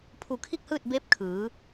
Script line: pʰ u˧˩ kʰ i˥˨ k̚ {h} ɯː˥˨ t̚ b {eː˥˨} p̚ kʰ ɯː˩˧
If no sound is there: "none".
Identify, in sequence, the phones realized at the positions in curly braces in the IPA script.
h, eː˧˥

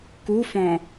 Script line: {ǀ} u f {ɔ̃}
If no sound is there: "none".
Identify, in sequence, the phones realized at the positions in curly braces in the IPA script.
k, ɔ̃

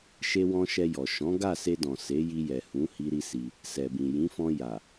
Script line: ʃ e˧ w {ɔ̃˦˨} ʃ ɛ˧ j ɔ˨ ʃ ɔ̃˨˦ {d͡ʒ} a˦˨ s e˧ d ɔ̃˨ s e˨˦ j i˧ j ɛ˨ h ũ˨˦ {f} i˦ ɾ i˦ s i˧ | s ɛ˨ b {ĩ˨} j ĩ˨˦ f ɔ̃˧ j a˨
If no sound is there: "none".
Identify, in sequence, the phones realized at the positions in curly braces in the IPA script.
ɔ̃˧, ɡ, h, ĩ˨

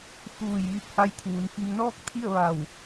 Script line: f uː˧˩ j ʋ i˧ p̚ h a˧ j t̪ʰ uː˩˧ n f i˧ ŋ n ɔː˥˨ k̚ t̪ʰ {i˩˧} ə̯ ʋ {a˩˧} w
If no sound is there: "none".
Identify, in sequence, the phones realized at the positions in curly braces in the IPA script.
i˥˨, a˧˩

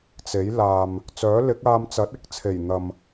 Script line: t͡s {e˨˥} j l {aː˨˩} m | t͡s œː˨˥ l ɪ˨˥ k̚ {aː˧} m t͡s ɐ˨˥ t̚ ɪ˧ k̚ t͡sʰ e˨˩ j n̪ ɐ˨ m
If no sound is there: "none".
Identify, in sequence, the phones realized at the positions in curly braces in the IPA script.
e˨˥, aː˨, aː˧

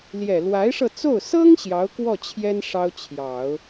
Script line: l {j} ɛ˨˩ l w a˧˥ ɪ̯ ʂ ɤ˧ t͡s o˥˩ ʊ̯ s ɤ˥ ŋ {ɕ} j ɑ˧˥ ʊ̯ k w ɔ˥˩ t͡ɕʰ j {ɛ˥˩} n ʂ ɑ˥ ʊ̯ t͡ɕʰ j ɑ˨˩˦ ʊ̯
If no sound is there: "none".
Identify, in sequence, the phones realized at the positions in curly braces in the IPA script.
j, ɕ, ɛ˥

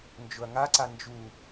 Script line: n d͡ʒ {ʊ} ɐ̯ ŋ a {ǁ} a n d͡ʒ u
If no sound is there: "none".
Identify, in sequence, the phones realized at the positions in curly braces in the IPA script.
ʊ, ǀ

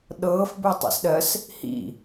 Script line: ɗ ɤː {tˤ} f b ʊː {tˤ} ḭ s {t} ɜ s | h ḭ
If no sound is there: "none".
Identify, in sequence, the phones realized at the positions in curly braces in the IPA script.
none, tˤ, ɗ

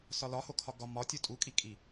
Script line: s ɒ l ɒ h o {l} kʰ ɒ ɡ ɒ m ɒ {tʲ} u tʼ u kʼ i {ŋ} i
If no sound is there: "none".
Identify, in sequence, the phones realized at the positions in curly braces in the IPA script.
none, tʲ, kʼ

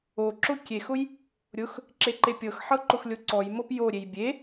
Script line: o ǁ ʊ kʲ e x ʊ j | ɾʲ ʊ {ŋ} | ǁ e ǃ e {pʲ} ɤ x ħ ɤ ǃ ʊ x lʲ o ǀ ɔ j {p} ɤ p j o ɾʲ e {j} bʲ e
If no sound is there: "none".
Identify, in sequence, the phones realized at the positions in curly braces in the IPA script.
x, pʲ, m, j

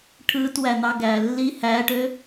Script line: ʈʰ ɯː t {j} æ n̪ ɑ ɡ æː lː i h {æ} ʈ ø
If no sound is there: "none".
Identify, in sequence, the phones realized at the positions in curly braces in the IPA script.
w, æː

